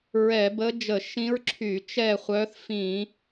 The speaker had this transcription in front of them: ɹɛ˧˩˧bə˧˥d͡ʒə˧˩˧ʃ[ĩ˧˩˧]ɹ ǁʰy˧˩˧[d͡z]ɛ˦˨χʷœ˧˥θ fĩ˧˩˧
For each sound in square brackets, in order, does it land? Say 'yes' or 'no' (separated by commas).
no, no